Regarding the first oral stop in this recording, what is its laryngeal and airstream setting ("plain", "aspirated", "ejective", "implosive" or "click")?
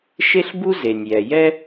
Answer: plain